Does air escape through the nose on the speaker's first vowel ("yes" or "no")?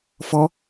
no